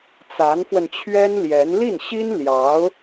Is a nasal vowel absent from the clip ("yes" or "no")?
yes